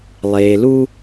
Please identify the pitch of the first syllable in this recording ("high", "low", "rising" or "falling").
low